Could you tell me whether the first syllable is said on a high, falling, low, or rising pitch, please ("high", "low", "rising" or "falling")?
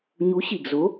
rising